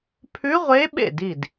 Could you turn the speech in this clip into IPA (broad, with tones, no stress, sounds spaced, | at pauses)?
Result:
pʰ ʉ˧˥ ʁʷ e˧˥ ɓ ḛ˥˩ d i˥˩ d